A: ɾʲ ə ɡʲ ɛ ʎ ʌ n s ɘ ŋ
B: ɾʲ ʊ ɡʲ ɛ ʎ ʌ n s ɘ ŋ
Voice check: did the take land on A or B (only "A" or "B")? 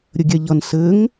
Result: A